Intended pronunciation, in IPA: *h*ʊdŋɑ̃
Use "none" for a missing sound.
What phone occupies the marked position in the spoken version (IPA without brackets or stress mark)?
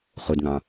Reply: χ